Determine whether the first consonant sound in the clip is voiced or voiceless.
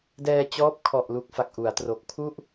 voiced